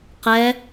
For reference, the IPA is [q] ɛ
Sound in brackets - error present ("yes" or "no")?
no